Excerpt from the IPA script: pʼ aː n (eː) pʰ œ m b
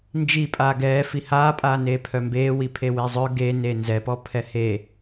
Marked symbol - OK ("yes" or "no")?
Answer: yes